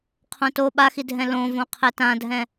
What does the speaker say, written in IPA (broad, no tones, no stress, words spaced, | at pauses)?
qʰõto ɓaxidʱɛ̃ lõvõ qʰɛtãdʱɛ̃